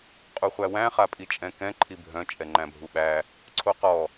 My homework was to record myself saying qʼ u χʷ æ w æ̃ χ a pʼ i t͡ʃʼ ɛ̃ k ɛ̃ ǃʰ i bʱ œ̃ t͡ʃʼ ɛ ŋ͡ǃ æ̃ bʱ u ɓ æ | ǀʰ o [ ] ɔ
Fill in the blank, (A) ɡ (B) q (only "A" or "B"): B